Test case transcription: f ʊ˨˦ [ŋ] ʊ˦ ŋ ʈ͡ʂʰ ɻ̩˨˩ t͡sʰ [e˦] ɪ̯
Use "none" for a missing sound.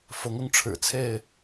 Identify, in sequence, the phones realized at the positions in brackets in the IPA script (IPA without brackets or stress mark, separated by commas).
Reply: ŋ, e˥˨